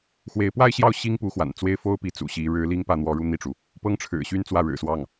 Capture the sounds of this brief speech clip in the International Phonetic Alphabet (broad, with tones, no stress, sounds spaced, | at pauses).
x w e˧˥ ɪ̯ p w a˥˧ ɪ̯ ɕ j ɑ˥˩ ʊ̯ ɕ i˥ ŋ p u˧˥ x w a̰˨˩ n t͡s w e˥˩ ɪ̯ f o˥ ʊ̯ p i˥˩ t͡s ṵ˨˩ ɕ i˧˥ ɻ ɻ̩˧˥ l i˥ ŋ p ä˥˩ n̪ w ɔ˧˥ ɻ u˥˧ n̪ i˥˩ ʈ͡ʂ u˩ | p ɤ˥ ŋ ʈ͡ʂʰ ɻ̩˨˩ ɕ y˥ n t͡s w ä˥˩ ɻ ɻ̩˨˩ s w ɑ˥˩ ŋ